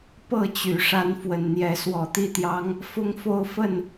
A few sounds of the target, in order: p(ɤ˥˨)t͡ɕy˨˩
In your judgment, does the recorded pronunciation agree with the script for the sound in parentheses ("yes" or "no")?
yes